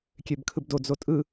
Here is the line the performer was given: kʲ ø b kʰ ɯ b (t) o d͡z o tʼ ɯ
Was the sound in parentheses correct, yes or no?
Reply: no